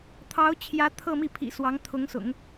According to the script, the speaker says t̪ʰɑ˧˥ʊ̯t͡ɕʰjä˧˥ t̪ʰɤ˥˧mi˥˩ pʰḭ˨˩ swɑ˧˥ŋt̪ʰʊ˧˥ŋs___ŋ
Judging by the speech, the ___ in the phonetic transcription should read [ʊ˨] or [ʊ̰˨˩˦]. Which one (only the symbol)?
ʊ̰˨˩˦